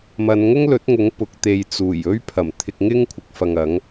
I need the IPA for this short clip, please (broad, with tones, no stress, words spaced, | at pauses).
mɐ˨˧nŋʊ˥ŋlɵ˨˥t̚ŋʊ˨˥ŋ pʊ˨˥k̚t̪e˧j t͡suː˨˩j ɵ˥ɥpʰɐ˨˩m t̪ʰɪ˧k̚ŋɪ˥ŋkʷʰɪ˨k̚fɐ˨ŋ ɐ˨˥ŋ